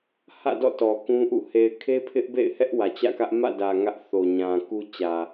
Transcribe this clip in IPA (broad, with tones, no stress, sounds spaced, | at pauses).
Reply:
h ä̰˦˨ d ɔ̰˦˨ t ɔ˨ k ũ˦ ʔ ṵ˦˨ h e˨ ɪ̯ kʰ e˦ pʰ ɪ˦ ʔ b ḛ˦˨ ɪ̯ h ɛ˦ ʔ w ä˨ t͡ɕ ä̰˦˨ k ä˦ ʔ m ä̰˦˨ d ä˨ ŋ ä˦ ʔ θ o˨ ɲ ã˨ k u˦ t͡ɕ ä˨